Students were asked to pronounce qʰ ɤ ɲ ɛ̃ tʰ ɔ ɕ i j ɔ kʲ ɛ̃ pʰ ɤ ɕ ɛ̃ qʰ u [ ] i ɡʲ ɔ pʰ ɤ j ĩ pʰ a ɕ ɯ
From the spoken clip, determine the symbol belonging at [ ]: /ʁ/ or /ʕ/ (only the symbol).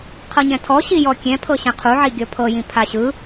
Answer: ʕ